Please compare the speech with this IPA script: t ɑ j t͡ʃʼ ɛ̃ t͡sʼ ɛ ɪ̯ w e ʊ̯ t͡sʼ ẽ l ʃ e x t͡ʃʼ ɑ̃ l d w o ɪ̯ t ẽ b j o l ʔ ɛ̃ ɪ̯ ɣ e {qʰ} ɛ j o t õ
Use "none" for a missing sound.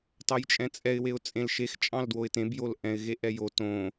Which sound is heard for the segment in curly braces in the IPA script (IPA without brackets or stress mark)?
ʔ